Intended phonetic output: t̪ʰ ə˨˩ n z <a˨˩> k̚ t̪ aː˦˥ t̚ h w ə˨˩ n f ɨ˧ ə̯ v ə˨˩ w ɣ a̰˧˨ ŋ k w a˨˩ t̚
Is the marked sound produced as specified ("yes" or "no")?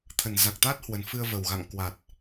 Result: yes